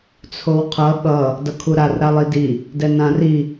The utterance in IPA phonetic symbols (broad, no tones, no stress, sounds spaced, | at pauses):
t͡sʰ o w qʰ ʌ ɠ ʌ | d ʌ kʰ u ɾ a r ɾ a lˠ i d i | d ɛ n ã r i